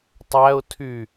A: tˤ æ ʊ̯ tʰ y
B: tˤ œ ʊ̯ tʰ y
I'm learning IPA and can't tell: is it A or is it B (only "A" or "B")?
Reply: A